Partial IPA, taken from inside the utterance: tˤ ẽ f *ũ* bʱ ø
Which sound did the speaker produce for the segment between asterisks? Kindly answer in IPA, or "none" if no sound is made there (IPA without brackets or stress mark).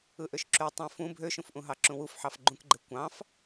ũ